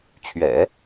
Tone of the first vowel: low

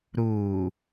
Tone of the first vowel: low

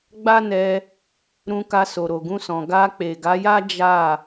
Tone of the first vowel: high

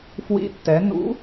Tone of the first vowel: rising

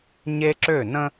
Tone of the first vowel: high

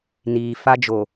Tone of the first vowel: low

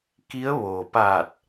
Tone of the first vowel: rising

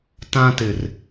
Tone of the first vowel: high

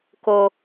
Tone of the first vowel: high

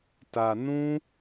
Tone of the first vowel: low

